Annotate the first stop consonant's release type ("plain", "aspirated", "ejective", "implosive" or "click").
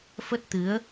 plain